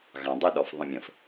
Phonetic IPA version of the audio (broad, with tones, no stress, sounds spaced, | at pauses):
ɣ ɑ̃˨ dˤ ʊ˦ ɗ ɔ˨ f ðˤ ə̃˨ mʲ ə̃˨ f